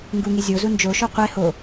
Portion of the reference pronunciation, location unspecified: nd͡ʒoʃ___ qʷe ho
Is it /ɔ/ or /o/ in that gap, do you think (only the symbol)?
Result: o